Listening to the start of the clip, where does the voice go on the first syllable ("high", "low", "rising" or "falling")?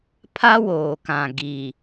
high